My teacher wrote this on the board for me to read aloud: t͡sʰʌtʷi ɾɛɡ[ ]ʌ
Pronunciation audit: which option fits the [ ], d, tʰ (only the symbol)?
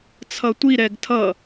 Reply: tʰ